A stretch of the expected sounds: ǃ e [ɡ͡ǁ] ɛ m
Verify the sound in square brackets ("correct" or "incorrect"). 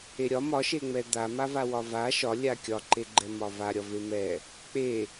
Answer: incorrect